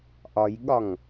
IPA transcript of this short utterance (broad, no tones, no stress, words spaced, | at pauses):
ʔɒjɠɒŋ